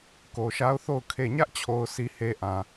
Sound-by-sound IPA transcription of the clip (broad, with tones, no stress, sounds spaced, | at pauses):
k o˨ ʃ a˦ ʊ̯ θ o˦˨ ʊ̯ kʰ e˦˨ ɲ ä˦ ʔ t͡ɕʰ o˨ ʊ̯ sʰ i˨ h e˨ ʔ ã˨